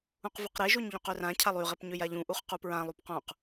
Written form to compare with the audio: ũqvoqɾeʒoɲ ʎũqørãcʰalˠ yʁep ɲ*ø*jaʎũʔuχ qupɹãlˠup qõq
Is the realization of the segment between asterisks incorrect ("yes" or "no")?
no